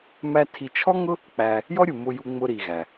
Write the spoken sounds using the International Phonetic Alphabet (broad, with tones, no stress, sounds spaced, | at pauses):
m æ˥ tʰ i˧ t͡ʃʰ ɔ˥ ŋ ʊ˥ | k͡p æ˧ | j ɔ˥ ɾʲ u˩ m ʊ˧ j u˧ ŋ͡m ʊ˧ ɾ i˩ ɣ æ˩